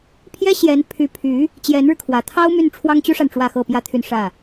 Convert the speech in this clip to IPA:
pʰjɛ˥ɕjɛ˧˥n pʰy˧˥ pʰy˧˥ | t͡ɕjɛ˧˥nɻɻ̩˧kʰwä˨˩ t̪ʰɑ˥ʊ̯my˥˩n ʈ͡ʂʰwɑ˥ŋt͡ɕy˥ʂa˨n ʈ͡ʂwä˥˧xɤ˥˩pjä˥t̪ʰy˥˧n ʂä˥˩

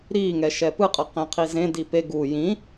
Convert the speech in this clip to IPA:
ɾiŋɛ ʃɛpɯqʼʌ qẽqʰizẽ dipe ɡu jĩ

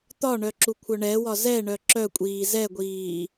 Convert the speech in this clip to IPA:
t̪ɒɳœ ǁukʷʰœɳɛwɒ zɛɳœ ǁœkʷʼiː zɛɡʷiː

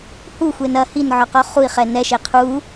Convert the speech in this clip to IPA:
huxʷen ɐ hinʕɔqɔ χui̯χɛ nɛʃe qʰu

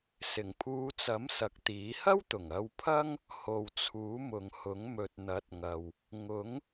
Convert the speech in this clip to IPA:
sɪ˨˩ŋpʰuː˨˧t͡sɐ˨˥m sɐ˨k̚t̪iː˨˥ hɐ˥wt̪ʊ˨˩ŋ ɐ˧wpʰɐ˥ŋ | ho˨wt͡sʰuː˨˥mʊ˨ŋhʊ˨˥ŋ mɵ˨t̚n̪ɐ˨˥t̚ ŋɐ˨w | ŋʊ˨˥ŋ

